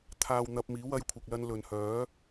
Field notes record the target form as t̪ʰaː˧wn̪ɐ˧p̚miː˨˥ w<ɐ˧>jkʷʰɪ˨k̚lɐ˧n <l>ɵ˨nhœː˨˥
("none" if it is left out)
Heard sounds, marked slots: ɐ˧, l

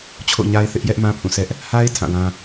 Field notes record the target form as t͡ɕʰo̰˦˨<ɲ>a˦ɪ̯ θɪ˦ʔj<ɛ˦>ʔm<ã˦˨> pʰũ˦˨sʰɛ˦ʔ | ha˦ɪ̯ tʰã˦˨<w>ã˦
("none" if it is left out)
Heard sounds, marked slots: ɲ, ɛ˦, ã˦, w

